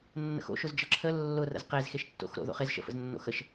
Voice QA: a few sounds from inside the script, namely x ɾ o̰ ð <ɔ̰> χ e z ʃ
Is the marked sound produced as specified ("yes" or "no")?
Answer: no